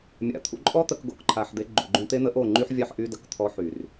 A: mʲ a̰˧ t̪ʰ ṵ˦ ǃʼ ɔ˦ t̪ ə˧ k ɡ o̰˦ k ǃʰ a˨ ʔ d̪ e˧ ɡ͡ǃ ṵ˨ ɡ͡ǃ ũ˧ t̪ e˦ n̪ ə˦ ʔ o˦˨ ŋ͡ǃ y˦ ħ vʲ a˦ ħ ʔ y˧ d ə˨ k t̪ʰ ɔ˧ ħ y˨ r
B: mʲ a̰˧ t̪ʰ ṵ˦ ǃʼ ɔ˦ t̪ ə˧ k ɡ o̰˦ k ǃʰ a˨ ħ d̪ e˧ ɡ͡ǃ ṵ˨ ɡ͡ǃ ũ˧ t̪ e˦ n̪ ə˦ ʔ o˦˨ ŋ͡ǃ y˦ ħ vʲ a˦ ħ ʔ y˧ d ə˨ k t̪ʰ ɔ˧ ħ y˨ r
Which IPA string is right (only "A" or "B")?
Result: B